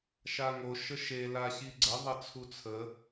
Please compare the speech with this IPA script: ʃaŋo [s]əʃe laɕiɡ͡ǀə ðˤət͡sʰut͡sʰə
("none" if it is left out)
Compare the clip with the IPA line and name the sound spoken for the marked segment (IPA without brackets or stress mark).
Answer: ʃ